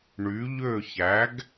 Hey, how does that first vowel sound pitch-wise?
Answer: rising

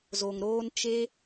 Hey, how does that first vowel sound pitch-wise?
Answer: low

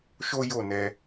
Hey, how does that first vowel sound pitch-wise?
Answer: high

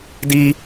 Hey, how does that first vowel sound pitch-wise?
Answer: high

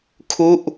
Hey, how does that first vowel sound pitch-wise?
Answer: falling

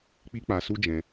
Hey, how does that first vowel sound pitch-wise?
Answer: high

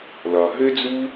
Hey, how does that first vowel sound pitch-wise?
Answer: low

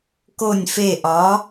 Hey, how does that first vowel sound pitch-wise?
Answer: low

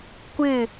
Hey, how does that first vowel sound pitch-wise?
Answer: falling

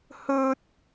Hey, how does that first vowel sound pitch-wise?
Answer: high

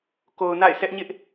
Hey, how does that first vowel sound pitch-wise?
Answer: low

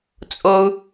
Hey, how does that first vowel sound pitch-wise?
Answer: high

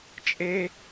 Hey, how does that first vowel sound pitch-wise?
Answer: high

